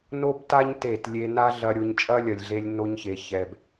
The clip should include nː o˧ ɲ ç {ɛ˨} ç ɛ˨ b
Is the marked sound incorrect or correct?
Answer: incorrect